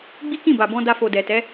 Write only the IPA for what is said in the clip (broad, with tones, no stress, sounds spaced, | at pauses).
ɡ͡b i˦ k ĩ˦˨ b a˨ b ɔ̃˧ d a˧ f o˨ d ɛ˨ t ɛ˨˦